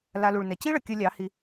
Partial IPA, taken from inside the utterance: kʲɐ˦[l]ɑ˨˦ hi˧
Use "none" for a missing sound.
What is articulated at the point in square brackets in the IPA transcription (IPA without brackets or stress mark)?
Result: lʲ